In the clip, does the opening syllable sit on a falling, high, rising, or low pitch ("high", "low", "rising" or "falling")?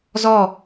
falling